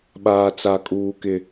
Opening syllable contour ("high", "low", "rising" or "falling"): low